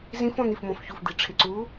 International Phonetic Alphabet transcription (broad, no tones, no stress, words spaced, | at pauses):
zĩf ɔ̃n̪if mɔ̃fçuf d̪iʈ͡ʂʰɪǀu